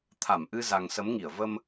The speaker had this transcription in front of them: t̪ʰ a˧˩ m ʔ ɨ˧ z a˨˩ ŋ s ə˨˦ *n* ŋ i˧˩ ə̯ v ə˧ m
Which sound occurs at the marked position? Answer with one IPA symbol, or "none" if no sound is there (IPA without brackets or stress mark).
m